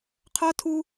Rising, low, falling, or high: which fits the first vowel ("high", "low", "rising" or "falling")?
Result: high